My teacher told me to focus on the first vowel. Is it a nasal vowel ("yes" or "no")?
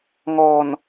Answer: no